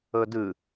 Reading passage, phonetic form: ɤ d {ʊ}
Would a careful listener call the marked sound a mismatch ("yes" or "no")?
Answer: yes